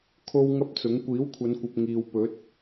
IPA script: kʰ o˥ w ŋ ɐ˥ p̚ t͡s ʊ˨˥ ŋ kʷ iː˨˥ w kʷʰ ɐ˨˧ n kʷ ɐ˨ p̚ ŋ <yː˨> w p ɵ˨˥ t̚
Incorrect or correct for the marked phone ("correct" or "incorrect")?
incorrect